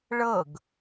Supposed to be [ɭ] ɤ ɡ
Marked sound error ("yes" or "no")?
no